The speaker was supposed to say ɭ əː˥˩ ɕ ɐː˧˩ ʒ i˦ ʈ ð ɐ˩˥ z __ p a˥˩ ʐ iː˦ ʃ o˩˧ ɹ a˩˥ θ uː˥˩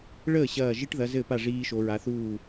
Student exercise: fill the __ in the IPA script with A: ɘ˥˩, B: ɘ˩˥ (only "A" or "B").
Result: A